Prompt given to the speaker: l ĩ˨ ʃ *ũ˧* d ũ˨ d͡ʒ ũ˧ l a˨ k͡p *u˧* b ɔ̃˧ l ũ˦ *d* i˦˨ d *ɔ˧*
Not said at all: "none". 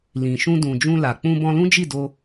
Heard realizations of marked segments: ũ˧, ũ˧, d͡ʒ, o˧

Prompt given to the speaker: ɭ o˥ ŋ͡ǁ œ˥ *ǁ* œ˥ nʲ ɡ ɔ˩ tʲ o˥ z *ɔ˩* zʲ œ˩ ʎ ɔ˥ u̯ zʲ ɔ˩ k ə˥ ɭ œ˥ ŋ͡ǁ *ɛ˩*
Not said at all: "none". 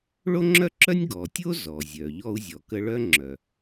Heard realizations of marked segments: ǁ, ɔ˩, œ˩

